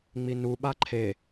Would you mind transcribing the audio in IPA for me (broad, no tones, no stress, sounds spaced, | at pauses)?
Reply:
ŋ͡m i n u ɓ a ǃʰ e